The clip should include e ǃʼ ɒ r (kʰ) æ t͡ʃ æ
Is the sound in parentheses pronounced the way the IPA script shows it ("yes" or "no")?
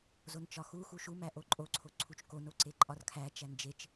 yes